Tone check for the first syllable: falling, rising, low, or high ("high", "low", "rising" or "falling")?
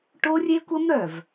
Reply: high